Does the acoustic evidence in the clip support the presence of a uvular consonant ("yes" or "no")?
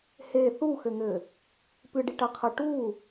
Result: yes